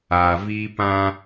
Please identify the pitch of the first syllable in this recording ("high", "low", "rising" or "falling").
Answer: low